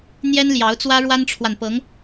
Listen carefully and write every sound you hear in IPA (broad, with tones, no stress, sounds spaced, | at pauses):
n̪ j ɛ˥ n l j ɑ˧˥ ʊ̯ t͡s w ä˥ ɻ w a˥ n ʈ͡ʂʰ w a˨ n p ɤ˧˥ ŋ